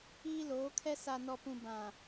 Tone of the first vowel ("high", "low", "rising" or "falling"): high